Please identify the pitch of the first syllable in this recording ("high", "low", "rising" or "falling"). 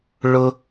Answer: high